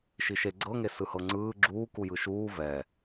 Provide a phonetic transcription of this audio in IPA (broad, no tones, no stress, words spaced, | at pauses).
ʃiʃe ɡ͡ǀɤŋe sɯhɤŋ͡ǀɯː ɡ͡ǁuːku jɯʃuː vɛ